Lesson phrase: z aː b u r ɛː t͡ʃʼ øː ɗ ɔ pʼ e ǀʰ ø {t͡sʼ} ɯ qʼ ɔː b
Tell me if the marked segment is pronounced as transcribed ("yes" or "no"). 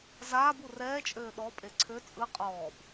yes